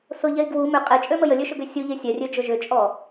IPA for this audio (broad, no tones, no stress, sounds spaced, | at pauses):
s ʊ ʎ ɛ i̯ ɡ w u m ʏ qʼ e t͡ʃʼ ø m ə j ə lʲ ø ʃ ʊ ɡ ø sʲ u ʎ e sʲ ɛ rʲ ø d͡ʒ ʊ ʒ ʏ t͡ʃʼ ɔ